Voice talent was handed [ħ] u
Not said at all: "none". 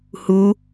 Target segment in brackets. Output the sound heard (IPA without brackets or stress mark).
h